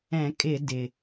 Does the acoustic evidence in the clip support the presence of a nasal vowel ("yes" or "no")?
yes